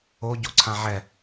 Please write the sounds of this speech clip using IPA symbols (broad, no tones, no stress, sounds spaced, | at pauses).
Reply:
o ɟ o ǀʰ ã ʕ ɛ